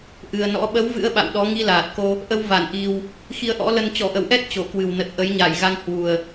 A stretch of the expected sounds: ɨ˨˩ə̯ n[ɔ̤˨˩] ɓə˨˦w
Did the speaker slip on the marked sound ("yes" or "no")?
yes